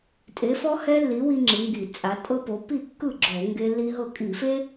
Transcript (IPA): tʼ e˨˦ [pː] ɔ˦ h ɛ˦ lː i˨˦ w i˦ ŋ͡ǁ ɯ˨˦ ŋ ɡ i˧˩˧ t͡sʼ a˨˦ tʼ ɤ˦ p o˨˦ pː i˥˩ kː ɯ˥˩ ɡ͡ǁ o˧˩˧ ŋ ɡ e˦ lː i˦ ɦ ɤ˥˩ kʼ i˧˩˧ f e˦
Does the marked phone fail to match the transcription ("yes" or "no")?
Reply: yes